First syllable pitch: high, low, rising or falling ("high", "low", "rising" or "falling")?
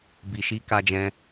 low